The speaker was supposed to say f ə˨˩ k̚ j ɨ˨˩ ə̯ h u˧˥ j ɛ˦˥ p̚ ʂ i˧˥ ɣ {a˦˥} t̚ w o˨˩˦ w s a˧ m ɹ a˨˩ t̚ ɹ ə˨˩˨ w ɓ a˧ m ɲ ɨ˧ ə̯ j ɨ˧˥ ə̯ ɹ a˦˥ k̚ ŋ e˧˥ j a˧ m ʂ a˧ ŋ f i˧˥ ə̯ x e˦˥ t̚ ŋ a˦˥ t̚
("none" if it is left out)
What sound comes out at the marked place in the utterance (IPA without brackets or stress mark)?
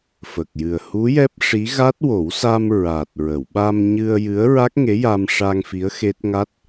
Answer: a˦˥